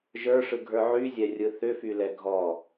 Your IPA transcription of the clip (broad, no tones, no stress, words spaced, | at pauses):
ʒə˞ʂɯɡʱə˞ ʕyzʲɛrʲɯ θʏfylɛ ɡʱɔ